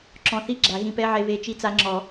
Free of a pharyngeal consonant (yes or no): no